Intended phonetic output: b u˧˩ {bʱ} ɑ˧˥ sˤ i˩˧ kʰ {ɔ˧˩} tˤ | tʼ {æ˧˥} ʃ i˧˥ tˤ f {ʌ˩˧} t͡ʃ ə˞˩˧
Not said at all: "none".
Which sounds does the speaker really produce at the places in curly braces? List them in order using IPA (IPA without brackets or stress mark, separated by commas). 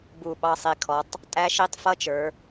ɓ, ɔ˩˧, æ˧˥, ʌ˧˥˧